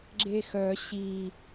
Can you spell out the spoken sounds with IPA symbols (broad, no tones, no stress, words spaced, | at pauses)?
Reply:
ɡ͡ǁexœ ɕi